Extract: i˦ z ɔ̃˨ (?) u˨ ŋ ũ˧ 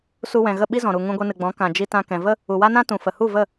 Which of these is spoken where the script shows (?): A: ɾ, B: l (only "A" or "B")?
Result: A